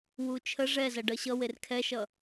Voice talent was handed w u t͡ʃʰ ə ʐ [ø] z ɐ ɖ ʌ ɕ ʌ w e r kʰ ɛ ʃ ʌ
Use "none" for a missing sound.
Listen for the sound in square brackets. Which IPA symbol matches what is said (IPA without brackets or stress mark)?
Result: ɛ